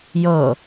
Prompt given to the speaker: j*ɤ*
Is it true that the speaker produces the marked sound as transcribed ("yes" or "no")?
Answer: yes